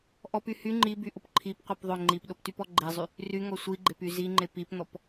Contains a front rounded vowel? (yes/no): yes